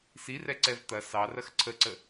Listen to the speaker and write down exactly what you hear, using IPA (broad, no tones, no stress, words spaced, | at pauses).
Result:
sirɛǀɛv t̪ɐ sɑrɐx ǀʰəǀə